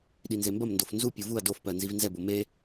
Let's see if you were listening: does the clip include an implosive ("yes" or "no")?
yes